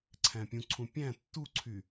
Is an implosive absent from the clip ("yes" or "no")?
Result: yes